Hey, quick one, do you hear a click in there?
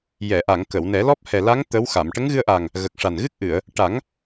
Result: no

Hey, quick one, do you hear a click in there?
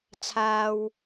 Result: no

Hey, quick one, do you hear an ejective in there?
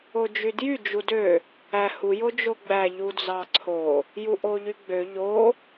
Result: no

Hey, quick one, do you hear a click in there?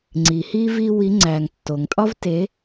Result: yes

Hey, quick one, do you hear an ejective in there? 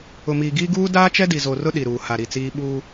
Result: no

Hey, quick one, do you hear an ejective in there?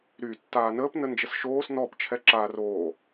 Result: no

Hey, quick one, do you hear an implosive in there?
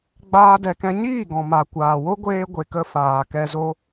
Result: no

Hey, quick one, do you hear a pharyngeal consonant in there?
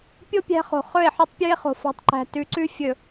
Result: yes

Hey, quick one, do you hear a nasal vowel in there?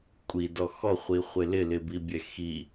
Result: no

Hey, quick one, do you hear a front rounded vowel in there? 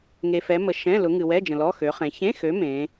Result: yes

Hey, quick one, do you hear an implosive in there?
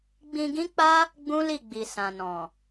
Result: no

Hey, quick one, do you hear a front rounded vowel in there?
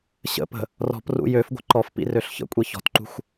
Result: yes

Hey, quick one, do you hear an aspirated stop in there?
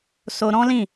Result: no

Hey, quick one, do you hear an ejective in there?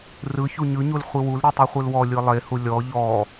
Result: no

